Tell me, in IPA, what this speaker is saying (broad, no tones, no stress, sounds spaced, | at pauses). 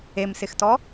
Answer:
e m s ɪ x t ɔ